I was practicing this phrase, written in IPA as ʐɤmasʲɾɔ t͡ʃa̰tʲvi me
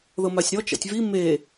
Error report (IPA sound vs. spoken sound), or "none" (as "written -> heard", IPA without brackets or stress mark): ʐ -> ð